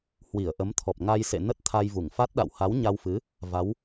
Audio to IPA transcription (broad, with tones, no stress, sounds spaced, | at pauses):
h w i˧˩ ə̯ ʔ ə˨˦ m t̪ʰ ɔ˨˩ p̚ ŋ a˧ j s ḛ˧˨ n ə˦˥ t̚ t̪ʰ a˧ j v u˧˩ ŋ f a˦˥ t̚ ɗ a̰˧˨ w h a˨˦ w ɲ a˧ w f ɨ˨˦ | v a˨˦ w